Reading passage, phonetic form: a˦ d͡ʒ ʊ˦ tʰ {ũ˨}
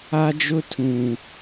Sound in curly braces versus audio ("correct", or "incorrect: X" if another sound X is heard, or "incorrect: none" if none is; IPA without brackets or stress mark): correct